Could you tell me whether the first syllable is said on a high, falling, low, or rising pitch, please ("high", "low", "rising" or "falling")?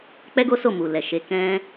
high